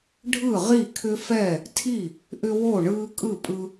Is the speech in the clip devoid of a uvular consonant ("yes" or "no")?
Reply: no